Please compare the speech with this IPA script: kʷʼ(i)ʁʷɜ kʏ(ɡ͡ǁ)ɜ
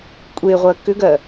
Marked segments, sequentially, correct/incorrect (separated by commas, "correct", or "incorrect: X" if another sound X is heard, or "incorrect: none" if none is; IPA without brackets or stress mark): incorrect: e, incorrect: ɡ